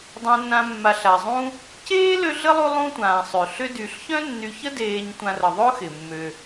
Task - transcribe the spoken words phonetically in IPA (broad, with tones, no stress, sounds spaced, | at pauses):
dˤ ã˨ nː ã˨ mː a˩ ɬ a˩ zˤ ũ˦ | c eː˥ l ø˦ ɮ ə˥ lˠ u˦ lˠ ũ˦ tʷ ãː˩ sˤ ø˩ ɬ ʏ˦ d y˨ ɬ ç œ̃˦ nː y˨ ç ə˦ d eː˨ ɲ tʷ ã˨ r ə˩ ðˤ ʊ˦ x ɪ˩ mː ø˩